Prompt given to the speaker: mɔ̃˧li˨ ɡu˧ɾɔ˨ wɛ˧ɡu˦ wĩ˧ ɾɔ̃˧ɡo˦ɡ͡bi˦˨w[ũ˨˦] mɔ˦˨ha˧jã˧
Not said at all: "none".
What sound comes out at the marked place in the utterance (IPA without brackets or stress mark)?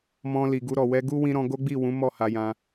ũ˨˦